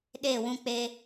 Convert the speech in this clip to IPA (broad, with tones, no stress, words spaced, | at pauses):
ɗeː˦˨wũ˦k͡pe˦